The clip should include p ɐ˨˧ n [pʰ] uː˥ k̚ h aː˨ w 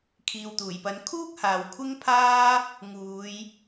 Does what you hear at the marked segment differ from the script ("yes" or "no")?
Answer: yes